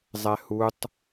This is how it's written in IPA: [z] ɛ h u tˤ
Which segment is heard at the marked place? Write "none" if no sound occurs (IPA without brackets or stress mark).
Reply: zˤ